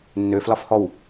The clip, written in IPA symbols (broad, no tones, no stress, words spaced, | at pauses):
nːø flɒfhɔw